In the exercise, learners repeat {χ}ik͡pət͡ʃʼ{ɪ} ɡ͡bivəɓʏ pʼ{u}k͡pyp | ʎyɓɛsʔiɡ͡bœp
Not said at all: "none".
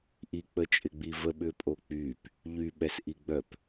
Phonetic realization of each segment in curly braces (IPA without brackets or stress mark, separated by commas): ʔ, ɪ, o